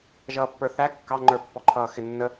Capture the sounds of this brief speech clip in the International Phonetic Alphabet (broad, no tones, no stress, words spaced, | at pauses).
ʒʌːpːə˞θæ kːɑŋ͡ǃə˞pːɔǃʰʌː xɪnːə